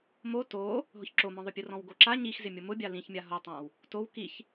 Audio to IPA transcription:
m o t o | ɦ ʊ ç ǁ o m ɔ̃ ðˤ ʊ pʲ ʊ r ɔ̃ w ɡ o ǁ a ɲ i x z ɪ mʲ ʊ m ʊ bʲ a l ĩ ç mʲ a ɦ o tˤ ã w | t o w k i ç

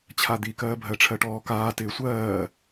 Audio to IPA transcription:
t͡ɕʰ a d̪ i k ɜː bʱ ɜ ʈ͡ʂʰ ɜ ʈ ɔː k aː t ɪː sʷ ɜː

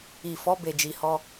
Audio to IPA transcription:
i˨ f ɔ˨˦ b e˧ d͡ʒ i˧ h ɔ˧

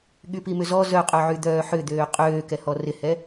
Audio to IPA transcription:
ɠ y p i m ʏ z ɔ z œ qʼ œ ʕ y d̪ œː ħ ʏ d̪ øː qʼ øː k ɛ h ɔ r ɪ h ɛ

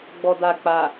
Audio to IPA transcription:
ɡ͡b ɔ d a k͡p a

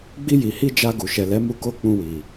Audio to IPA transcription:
ɡ͡b i˧ j i˨ h i˧ d͡ʒ a˧ ɡ u˨ ʃ ɛ˨ l ɛ˨˦ m u˧ k o˦ k͡p ũ˧ w i˨

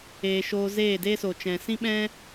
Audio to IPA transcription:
eː˨ ʃ oː˧ z eː˦˨ d eː˦ s o˨ t͡ʃ ɛ̃˨ s ĩ˦ ɓ ɛ̃˦

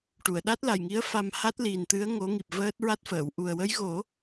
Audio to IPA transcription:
ʈ u˨˩˨ ə̯ ɗ a˦˥ t̚ l a˨˩ j ŋ i˧˥ ə̯ f a˧ m h a˦˥ t̚ l i˨˩ n t̪ ɨ˧˥ ə̯ ŋ o˧˥ ŋ i˨˩ p̚ v əː˦˥ t̚ ɹ a˦˥ t̚ f əː˨˩˨ w ʔ u˨˩ ə̯ w ə˧˥ j ɣ o˨˩˦

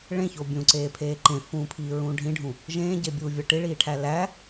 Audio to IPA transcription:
ɭ ẽ ç o bʲ ũ ǀ eː pʰ eː ǃ ẽ f ũː pʰ iː ɹ ũː ɖʱ ĩ ɖʱ ũ | ʒ ẽː ɟ e bʲ uː vʲ ɒ ʈ i ɭ iː ʈʰ æ l æ

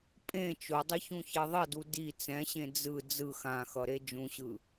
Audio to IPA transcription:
pʼ ẽ t͡ʃ o dˤ i ç ũ ç e ðˤ ʌ d u d i t͡s ɛ̃ ɕ ẽ d͡z ɯ d͡z ɯ x ã x ʌ ɾ e d͡ʒ ũ ɕ ɯ

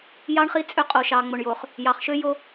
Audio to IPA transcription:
j ɑ˦ ɳ χ i˦ t͡sʼ ø˦ qʼ o˨ ʃ ɑ˨ ŋ͡m o˨ ɳ j o˨ χ | j ɑ˨ χ ʃ ø˦ j o˦

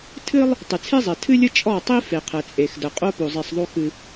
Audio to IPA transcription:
tʰ ɨ˦ lˠ | tˤ ɨ˨ t͡sʰ e˦ zˤ ɛ˨ tʰ ɨ˦ lʲ ə˦ t͡ʃʼ ɔ˦˨ tˤ i˦ f e˨ qʰ ɛ˨ t͡sʼ e˨ x d ə˨ qʼ o˦ p o˨ zˤ i˨ sˤ ðˤ o˦ x ɨ˦

